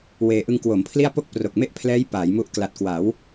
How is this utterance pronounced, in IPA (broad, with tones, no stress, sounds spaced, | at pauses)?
w eː˧ ʔ ɯ˧ ŋ k w o˩˦ m pʰ l i˥˩ a̯ p o˥˩ k̚ p r o˨˩ k̚ m e˥˩ ʔ pʰ l ɛː˦˥ j p aː˩˦ j m u˦˥ ʔ k l a˨˩ t̚ k w a˩˦ w